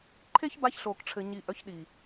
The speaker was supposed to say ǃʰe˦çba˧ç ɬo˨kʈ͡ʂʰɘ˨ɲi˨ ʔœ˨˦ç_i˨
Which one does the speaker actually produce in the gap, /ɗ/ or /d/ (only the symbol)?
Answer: ɗ